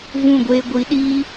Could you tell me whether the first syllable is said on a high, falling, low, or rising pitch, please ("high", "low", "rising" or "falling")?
falling